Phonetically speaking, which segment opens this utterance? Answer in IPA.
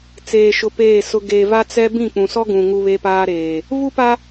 t͡s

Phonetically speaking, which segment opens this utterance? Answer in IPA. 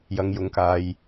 j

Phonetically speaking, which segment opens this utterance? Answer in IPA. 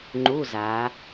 ŋ͡ǃ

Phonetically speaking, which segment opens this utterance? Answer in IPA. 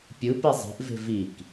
pʲ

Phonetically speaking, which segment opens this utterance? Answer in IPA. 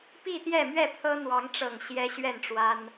p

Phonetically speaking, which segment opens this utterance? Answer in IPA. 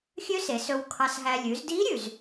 xʲ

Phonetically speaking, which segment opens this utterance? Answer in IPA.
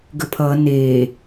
ɡ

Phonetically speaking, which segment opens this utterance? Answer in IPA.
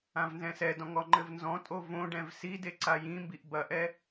ã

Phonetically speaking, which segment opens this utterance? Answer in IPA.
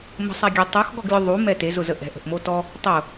m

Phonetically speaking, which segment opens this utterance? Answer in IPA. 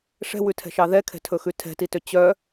ʂ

